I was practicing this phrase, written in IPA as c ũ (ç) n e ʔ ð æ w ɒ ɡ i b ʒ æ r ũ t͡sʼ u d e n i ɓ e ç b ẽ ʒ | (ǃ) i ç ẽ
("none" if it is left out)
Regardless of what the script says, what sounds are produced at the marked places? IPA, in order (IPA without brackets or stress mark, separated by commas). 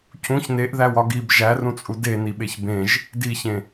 ç, d